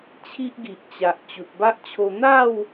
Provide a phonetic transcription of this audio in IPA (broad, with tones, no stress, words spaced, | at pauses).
t͡ɕʰi˦ʔɡi˨ʔt͡ɕa˨ʔ t͡ɕu˨t̚ba˦ʔt͡ɕʰo˧ n̪a˥˧w